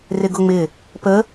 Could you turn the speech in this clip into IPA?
r ɪ ɡ ʊ ŋ͡m ɪ | p ə

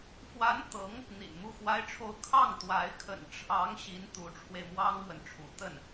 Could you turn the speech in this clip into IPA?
f w a˧˥ n t̪ ɤ˧˥ ŋ | n̪ ḭ˨˩ n m u˥˩ x w a˥ ɪ̯ ʈ͡ʂʰ o˥˧ ʊ̯ kʰ ɑ˥˩ ŋ t̪ w a˧˥ ɪ̯ kʰ ə̰˨˩ n ʈ͡ʂʰ ɑ˧˥ ŋ ɕ i˧˥ n t̪ u˧˥ ʈ͡ʂʰ w e˧ ɪ̯ m w ɑ˥ ŋ m w ə˨ n ʈ͡ʂʰ ṵ˨˩ t̪ ə˥˩ n

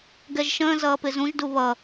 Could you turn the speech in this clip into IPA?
ɡ ɛ ʒ ʃ ə̃ː z ʌː p ɪ z ũ ʒ d u β ʌ

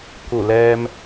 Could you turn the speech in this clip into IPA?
k u˧˩ l ɛː˧ m

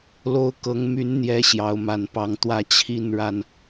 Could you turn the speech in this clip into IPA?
l o˦ ʊ̯ k ɤ˨˦ ŋ m y˨˦ n n̪ j ɛ˨˦ ɕ j ɑ˨˦ ʊ̯ m a˨˩ n p ɑ˨˦ ŋ t̪ w ä˥˨ t͡ɕʰ i˥˨ n ɻ a˨˩ n

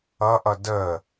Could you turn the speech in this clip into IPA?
ʌ ʔ ʌ d əː

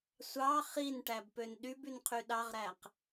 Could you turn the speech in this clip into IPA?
sʷ ɑ χ i n ʈ æ b p ø n ɗ y b y n qʰ y ɗ ɑ ʁ ɾ æ q

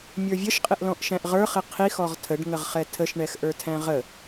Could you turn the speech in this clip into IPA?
mʲ ə˞ vʲ ə ʃ qʼ ɪ ʔ l ɔ̃ ʔ ʃ æ̃ ʔ ʁ ə˞ χ ɪ qʰ i x ɔ ʁ tʰ ə ɖ ŋ ə ʁ χ ɛ tʰ ə ʃ ɳ ɛ x ʔ ə˞ tʰ æ̃ ʁ ə

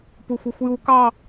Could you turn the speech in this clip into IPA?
p u xʷ ɛ xʷ j u k ɑ

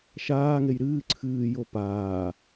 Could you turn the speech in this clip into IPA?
ʃ aː ŋ e j ɾ ɨː ǀʰ ɨː j o p aː

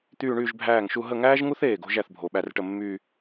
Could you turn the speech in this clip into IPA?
t̪ yː˥˧ ɳ yː˥˧ ʒ bʱ æː˥˩ ŋ ʃ u˥˧ ɦ ə˥˩ ŋ æː˥ ʒ ŋ u˥ θ eː˥˩ ɡ o̤˥ ʒ æ˥˩ θ bʱ o˩˧ ɓ æ˥˩ r ʈ ə˥˩ mː yː˥˧

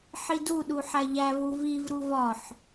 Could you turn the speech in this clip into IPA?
ħ i d u ɗ u ħ æ ʎ æ v u v i v ɾ u v ɒ ħ

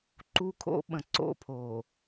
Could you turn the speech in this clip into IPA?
ǃ u˦ kʰ o̰˦ ɓ ə̃˨ ǀ o̰˦˨ pʰ o˨

